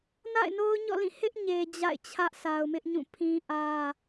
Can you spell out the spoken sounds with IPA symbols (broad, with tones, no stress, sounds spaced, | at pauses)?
n a̰˦˨ ɪ̯ n o˦ ʊ̯ ɲ ɔ̰˦˨ l ĩ˦˨ h ɪ˦ ʔ ɲ e˨ d͡ʑ a̰˦˨ ɪ̯ t͡ɕʰ ä˦ ʔ sʰ a˨ ʊ̯ m ɪ˦ ʔ ɲ ũ˦˨ pʰ ĩ˦ ʔ ä˦